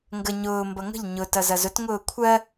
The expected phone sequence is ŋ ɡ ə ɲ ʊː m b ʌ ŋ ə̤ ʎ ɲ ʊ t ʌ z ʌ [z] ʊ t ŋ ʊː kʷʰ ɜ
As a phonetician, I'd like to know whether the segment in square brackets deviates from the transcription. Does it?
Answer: no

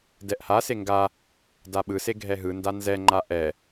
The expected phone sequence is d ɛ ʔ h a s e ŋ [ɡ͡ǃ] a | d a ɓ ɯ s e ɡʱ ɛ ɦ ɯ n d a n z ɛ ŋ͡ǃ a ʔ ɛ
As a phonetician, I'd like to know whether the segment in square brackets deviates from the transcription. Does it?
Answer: yes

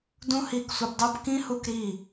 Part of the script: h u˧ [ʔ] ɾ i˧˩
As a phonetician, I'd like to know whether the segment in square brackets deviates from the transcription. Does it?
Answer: yes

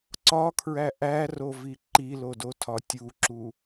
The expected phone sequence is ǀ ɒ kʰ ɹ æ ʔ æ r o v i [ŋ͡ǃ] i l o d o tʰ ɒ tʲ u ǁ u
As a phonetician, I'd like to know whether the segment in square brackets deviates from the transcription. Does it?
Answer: yes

